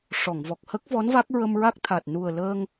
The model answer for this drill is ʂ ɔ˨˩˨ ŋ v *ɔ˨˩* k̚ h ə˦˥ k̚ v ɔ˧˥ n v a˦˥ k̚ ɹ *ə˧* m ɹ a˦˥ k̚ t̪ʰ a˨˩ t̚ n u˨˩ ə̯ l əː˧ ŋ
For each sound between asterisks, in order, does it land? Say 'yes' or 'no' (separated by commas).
yes, yes